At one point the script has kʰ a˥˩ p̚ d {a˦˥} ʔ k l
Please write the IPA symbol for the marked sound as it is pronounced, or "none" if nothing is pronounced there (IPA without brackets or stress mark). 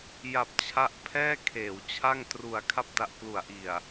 a˦˥